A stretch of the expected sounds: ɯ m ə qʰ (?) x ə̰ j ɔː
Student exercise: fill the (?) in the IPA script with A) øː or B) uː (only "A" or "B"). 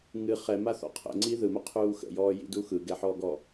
B